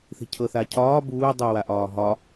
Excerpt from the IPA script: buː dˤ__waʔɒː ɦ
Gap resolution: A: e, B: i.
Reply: B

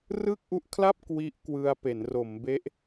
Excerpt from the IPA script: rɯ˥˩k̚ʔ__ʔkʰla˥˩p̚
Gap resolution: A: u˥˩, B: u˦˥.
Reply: B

